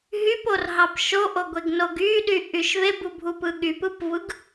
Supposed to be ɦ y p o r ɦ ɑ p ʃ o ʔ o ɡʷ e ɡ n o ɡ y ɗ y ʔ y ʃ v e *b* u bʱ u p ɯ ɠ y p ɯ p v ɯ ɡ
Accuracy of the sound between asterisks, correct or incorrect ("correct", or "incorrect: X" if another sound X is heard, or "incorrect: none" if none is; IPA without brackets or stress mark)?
correct